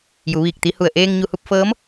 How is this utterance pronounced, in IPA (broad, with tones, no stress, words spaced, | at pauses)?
ju˩˧ʋiː˧˩k̚t̪i˧˥hu˧˩ə̯ ʔeː˧ŋɲu˧˩hu˥˨p̚fɤː˧˥m